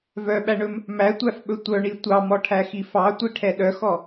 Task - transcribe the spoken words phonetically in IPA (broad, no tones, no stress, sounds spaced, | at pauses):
v œ ɓ æ ɳ ɵ m | m æ tʷ æ f ɓ ɵ tʷ œ ɳ i tʷ ɑ m ɔ ʈʰ æ x i f ɑ tʷ i ʈʰ ɛ ɗ œ x ɔ